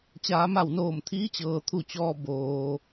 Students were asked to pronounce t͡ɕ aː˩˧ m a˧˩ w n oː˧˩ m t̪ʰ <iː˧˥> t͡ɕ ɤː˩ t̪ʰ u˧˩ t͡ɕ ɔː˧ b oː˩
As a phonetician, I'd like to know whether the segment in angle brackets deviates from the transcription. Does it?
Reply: no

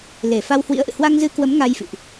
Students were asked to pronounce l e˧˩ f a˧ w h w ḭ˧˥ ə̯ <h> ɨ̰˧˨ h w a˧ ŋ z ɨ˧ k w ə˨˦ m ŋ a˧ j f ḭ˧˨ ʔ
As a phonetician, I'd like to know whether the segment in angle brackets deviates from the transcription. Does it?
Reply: yes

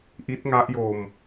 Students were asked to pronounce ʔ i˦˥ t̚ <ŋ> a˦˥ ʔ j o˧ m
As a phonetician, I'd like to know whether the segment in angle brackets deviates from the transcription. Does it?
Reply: no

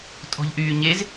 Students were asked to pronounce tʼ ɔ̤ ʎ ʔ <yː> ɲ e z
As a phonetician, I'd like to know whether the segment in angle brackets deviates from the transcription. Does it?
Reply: no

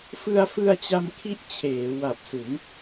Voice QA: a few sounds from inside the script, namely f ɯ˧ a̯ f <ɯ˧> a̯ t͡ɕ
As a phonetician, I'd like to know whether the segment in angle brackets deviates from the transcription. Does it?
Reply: no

